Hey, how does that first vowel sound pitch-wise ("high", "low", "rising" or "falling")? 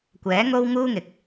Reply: rising